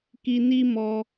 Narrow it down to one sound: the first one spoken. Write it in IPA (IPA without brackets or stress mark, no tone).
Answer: k